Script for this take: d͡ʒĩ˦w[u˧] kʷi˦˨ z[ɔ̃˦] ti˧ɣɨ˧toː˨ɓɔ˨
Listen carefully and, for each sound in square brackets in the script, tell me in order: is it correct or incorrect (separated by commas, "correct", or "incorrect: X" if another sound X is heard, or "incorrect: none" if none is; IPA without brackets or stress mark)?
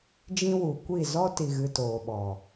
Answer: incorrect: u˨, incorrect: ɔ˦